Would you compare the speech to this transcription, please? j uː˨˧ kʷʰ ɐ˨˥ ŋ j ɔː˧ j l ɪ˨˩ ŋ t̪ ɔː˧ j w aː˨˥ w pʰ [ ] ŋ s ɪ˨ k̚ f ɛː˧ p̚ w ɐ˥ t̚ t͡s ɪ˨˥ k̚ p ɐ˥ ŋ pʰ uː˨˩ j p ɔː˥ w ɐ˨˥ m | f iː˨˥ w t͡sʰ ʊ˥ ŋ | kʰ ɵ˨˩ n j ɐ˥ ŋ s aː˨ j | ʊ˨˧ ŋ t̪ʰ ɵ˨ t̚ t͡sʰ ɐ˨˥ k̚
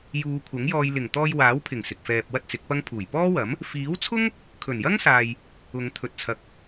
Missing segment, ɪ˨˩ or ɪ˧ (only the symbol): ɪ˨˩